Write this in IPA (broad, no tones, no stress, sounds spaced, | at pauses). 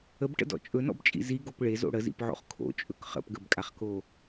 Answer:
ə b ʈ ə̰ d ɔ̰ t͡ʃʼ ɵ n ɔ̰ b t͡ʃʼ ḭ z i ɡ o p ɭ e z o̰ ɽ ə z ḭ p ʕ o̰ χ kʰ o̰ t͡ʃʼ ɵ k χ ə̰ p ɡ ə b kʼ a χ k o